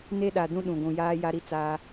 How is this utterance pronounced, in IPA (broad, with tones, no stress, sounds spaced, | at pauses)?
n e˦ ɗ a˨ d ũ˦ ɗ ũ˨ ɡʷ ũ˨ j aː˦ j a˦ ɾ i˦ t͡s aː˦